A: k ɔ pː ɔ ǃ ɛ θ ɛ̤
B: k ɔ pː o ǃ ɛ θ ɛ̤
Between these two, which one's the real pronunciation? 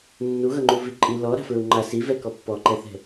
A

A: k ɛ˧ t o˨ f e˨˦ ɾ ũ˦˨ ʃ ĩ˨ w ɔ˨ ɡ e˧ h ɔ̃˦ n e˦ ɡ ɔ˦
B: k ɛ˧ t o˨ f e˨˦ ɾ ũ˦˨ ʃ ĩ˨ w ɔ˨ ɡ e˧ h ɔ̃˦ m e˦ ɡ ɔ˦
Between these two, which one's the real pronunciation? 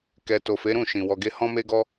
B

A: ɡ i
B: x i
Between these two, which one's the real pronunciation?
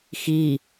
B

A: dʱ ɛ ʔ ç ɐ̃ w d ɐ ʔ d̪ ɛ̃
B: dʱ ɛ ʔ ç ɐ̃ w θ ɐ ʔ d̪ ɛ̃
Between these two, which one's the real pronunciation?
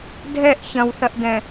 B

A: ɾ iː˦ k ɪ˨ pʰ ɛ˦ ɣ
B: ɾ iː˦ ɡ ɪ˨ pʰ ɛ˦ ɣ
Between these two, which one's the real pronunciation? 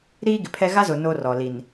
B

